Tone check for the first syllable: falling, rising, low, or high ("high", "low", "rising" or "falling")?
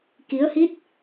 rising